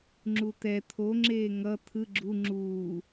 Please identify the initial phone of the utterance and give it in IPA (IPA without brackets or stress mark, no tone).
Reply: ŋ͡ǁ